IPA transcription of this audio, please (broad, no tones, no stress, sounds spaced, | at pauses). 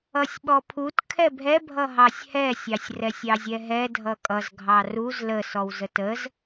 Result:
ʌ sʲ ɓ ɔ pʰ u t kʰ ɛ bʱ ɛ bʱ ʌ ɦ ɑ sʲ h ɛ sʲ ɑ sʲ r ɛ sʲ ɑ zʲ ɛ ɦ ɛ dʱ ʌ kʼ ʌ z ɡʱ ɑ r u z l ə s ɔ w z ə t ə z